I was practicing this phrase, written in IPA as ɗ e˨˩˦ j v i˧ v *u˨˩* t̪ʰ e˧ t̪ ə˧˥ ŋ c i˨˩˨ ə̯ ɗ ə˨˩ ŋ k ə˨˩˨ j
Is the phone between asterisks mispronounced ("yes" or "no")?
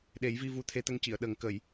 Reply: yes